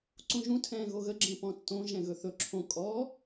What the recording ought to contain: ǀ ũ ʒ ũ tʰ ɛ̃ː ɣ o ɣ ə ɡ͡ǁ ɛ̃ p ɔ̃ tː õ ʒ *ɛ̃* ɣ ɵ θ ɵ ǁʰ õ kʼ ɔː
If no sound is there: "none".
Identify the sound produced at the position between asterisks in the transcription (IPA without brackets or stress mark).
ɛ̃